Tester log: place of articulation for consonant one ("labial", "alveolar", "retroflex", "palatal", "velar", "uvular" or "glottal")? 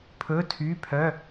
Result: labial